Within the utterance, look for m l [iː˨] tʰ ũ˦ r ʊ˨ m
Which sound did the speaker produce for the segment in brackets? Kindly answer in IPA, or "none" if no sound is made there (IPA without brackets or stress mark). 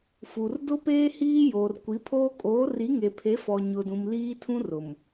iː˦